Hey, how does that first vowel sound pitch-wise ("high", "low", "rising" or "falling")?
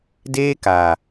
high